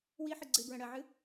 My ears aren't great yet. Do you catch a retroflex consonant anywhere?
yes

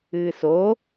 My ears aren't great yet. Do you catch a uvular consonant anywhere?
no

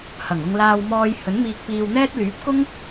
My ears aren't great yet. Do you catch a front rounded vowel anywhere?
yes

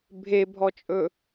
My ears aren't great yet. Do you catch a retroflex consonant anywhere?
no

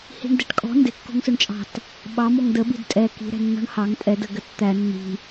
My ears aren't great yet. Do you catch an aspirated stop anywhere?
no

